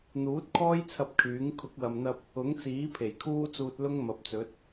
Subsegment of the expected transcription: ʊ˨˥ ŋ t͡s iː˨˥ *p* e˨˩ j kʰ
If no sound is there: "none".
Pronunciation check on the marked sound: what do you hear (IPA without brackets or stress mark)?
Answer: pʰ